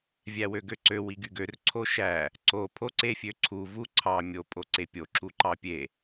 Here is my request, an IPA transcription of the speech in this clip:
vʲ æ w ø ɡ ø ǀ ø w i ɡ y ɡ ø r ǀʰ o ʃ æ | ǀ o pʰ o ǀ e fʲ ø ǀʰ u v u ǀʰ ɑ mʲ o pʼ o ǀ e pʲ o ǁ u ǃ ɑ pʲ e

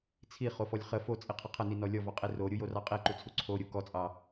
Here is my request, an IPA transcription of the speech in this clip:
t͡sʰ i χ o f ɔ lʲ χ ə f o t͡sʼ i qʰ ə qʰ ə n i n ɔ lʲ ɔ v ɑ qʼ i r o ɾʲ u j o r ɑ qʼ i ǃ u t͡sʰ u ǀʰ o ɾʲ u k ɔ t͡sʼ ɑ

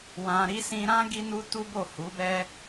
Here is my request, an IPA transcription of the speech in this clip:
w ã˧ ɾ i˦ s ĩ˧ ɾ ã˦ ɡ i˦ n u˦ t u˦ b o˦˨ h u˨˦ b ɛ˦

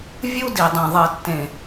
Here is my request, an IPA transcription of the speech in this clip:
vʲ u˦ d i˨ dˤ ĩ˨ ðˤ ɜ˨ tː ẽ˨

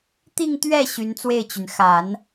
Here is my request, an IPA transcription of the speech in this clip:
t̪ i˥˧ ŋ t̪ ɥ ɛ˥˩ ɕ y˧˥ n t͡s w e˥˩ ɪ̯ t͡ɕ y˩ n x a˨˩˦ n

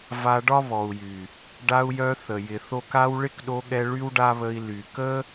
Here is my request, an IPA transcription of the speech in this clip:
v a˧ ɖ ɒ˦ β ɔ˨ u̯ j y˨ | ɖ a˧ u̯ j œ˧ θ ə˨ j ɪ˨ θ o˧ k a˧ w ɭ ɪ˦ k ɗ o˧ ɠ ɛ˧ ɭ y˦ w ɖ a˦ β ə˧ i̯ l y˨ k ə˦

